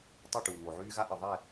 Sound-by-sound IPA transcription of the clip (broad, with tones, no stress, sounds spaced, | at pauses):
tˤ u˦˨ ʈ uː˨ ŋ o˨ ʕ yː˦ ɣ a˦ ʔ ɨ˨ ðˤ ɛ˦˨